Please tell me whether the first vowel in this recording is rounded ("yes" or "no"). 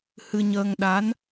no